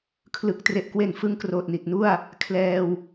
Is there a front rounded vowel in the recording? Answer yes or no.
no